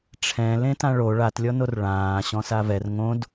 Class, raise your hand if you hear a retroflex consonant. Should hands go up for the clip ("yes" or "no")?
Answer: yes